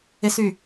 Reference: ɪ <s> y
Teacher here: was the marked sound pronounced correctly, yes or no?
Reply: yes